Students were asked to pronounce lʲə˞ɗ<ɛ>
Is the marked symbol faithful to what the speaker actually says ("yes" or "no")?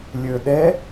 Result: yes